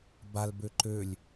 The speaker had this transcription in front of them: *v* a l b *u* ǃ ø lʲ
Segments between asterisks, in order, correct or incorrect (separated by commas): incorrect, incorrect